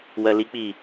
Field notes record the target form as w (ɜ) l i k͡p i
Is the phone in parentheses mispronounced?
no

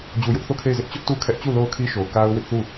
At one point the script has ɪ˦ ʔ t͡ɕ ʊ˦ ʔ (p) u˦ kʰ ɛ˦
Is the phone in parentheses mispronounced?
yes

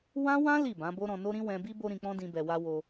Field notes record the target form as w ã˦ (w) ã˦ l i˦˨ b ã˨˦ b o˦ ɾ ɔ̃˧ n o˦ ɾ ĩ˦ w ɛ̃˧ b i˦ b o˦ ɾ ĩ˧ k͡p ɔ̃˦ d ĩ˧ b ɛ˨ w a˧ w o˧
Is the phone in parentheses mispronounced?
no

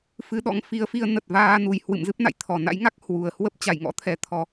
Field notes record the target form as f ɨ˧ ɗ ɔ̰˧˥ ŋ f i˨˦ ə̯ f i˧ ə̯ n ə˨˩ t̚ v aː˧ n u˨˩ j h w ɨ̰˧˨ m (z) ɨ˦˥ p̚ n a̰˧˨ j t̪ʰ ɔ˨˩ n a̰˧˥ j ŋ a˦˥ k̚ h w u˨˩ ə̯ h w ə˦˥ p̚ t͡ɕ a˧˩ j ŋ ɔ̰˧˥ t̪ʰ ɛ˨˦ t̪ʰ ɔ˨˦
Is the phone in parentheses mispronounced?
no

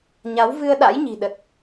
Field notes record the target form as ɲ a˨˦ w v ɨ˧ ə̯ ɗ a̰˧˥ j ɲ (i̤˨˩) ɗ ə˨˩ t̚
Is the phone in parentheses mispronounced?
no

